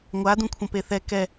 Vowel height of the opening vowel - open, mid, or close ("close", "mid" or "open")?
open